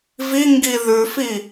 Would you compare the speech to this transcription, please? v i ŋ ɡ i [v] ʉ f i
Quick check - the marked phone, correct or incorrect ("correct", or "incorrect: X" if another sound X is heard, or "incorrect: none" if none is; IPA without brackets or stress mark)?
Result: incorrect: ð